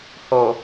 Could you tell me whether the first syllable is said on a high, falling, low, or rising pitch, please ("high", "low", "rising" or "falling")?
low